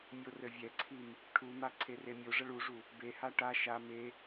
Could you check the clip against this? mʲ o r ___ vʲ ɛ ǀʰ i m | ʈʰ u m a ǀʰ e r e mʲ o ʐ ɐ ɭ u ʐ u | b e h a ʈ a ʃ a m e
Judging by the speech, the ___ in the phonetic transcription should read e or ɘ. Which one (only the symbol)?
ɘ